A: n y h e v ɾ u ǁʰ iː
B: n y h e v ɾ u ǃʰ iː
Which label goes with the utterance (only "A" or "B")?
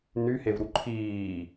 B